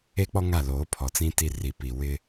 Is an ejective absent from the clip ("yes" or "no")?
yes